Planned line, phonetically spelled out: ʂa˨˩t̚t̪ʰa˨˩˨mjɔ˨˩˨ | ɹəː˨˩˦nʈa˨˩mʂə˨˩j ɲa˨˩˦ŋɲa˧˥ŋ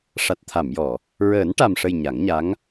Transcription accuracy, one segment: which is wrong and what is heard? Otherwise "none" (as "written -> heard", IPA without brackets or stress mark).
none